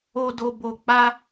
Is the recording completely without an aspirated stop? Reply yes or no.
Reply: yes